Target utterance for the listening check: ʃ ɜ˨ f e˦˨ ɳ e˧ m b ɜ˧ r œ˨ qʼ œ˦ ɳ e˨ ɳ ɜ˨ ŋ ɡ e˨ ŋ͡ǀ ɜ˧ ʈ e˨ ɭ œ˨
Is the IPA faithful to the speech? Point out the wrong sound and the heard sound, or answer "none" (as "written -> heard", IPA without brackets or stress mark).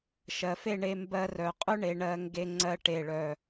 none